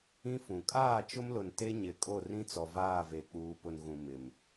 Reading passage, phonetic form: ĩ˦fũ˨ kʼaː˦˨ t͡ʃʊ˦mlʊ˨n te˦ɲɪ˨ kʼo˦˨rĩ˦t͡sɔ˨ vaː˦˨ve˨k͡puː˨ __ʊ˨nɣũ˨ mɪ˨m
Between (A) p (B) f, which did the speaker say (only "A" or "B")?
A